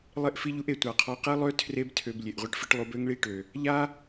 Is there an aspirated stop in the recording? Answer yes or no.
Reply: yes